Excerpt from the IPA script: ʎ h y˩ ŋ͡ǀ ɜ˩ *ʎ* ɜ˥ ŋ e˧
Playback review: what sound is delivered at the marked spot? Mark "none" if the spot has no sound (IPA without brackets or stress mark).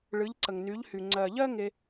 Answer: ʎ